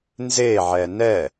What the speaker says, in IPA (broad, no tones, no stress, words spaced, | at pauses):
nzeʕɛ nɛ